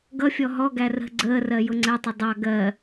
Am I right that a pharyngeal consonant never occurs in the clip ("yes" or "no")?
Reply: yes